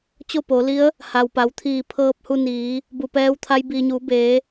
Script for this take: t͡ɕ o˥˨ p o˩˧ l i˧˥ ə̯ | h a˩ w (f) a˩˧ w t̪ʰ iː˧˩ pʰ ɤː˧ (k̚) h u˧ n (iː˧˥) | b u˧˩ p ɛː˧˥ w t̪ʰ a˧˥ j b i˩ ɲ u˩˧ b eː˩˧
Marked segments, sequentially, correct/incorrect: incorrect: p, incorrect: p̚, incorrect: iː˩˧

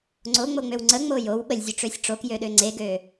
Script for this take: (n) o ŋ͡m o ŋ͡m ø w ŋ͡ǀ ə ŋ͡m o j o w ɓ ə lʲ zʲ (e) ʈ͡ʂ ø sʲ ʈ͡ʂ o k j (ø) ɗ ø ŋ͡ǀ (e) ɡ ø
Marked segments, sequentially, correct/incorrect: incorrect: ŋ͡ǀ, incorrect: ø, correct, correct

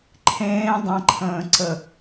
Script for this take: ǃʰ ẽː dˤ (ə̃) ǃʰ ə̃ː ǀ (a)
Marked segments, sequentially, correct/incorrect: correct, incorrect: ə

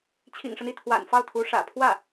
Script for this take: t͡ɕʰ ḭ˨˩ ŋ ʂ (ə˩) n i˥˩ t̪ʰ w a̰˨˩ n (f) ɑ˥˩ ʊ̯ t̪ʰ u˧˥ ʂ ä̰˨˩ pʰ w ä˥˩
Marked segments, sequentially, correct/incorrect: incorrect: ə˦, correct

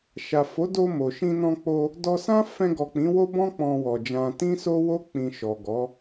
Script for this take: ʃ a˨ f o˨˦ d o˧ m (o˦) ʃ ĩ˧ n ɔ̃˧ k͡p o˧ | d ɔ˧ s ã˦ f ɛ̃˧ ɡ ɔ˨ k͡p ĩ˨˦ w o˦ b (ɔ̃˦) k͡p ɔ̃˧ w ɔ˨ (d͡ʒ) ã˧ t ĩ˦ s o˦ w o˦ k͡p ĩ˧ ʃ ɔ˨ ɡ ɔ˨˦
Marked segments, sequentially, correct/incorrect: incorrect: o˨, correct, correct

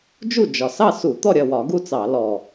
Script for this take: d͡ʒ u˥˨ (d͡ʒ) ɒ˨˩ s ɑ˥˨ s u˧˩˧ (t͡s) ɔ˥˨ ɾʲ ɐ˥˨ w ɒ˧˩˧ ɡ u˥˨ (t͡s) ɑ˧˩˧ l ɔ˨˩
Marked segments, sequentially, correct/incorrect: correct, incorrect: t̪, correct

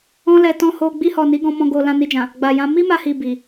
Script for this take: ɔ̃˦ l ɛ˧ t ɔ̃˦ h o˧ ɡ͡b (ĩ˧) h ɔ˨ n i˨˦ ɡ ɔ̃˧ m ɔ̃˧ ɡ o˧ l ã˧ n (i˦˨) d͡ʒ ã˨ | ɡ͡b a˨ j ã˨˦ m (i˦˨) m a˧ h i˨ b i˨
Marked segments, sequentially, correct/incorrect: incorrect: i˧, incorrect: i˧, incorrect: i˦

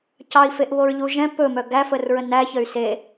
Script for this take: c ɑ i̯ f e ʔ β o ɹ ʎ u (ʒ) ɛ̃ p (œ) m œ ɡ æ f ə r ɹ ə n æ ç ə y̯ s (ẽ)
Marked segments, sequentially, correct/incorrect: correct, incorrect: ɵ, incorrect: e

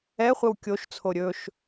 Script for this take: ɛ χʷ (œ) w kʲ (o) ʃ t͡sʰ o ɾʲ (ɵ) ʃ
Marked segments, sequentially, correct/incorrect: incorrect: ə, correct, correct

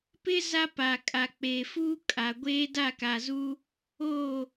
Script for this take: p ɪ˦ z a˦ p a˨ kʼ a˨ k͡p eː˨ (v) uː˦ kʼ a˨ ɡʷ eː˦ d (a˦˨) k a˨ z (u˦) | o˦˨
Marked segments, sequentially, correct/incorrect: incorrect: f, correct, correct

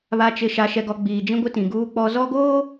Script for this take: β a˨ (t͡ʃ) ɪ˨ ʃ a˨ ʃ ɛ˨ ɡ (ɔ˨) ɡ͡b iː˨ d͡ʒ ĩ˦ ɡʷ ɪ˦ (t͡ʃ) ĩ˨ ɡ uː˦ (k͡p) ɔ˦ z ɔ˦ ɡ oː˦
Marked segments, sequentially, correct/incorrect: correct, correct, incorrect: t, correct

